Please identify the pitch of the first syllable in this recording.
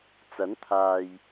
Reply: rising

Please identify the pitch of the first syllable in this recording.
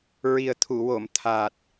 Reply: low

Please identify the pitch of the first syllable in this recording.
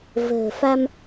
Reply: low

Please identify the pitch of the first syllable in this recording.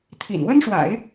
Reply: low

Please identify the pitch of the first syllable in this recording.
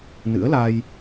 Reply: rising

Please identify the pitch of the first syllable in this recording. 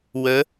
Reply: rising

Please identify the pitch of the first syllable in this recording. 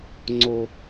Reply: high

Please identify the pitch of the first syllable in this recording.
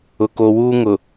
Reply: low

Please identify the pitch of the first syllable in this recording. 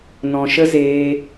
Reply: low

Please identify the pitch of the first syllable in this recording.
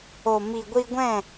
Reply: low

